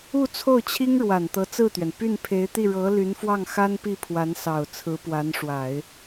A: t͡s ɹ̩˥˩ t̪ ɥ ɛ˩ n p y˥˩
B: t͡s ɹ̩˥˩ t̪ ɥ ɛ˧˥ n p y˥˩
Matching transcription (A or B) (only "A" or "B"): A